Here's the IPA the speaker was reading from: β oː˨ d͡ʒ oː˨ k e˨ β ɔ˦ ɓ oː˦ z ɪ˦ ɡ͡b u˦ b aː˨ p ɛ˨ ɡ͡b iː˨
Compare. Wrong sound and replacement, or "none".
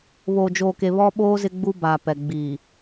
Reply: none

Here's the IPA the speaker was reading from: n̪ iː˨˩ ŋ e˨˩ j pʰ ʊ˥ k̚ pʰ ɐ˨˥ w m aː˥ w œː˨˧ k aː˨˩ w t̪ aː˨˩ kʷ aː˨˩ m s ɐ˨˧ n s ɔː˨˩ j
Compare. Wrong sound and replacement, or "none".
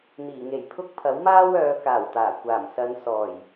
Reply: none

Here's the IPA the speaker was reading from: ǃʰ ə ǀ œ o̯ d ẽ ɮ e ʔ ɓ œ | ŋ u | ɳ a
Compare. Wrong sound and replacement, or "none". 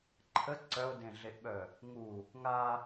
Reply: ɳ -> ŋ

